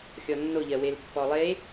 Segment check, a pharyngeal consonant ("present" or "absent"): absent